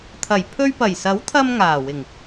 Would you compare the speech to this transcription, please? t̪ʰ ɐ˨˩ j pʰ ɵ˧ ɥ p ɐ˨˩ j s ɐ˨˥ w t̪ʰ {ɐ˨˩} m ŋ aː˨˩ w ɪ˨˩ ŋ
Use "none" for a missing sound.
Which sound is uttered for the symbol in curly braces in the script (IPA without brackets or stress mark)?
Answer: ɐ˧